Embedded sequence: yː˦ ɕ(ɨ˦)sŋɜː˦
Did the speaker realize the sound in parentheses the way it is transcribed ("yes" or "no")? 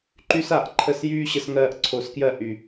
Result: no